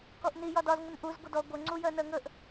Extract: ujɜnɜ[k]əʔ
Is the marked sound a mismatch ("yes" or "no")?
yes